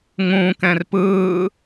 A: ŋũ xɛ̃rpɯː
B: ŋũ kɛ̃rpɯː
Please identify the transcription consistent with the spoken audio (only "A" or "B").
B